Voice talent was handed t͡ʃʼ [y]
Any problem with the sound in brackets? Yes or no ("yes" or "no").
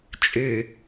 no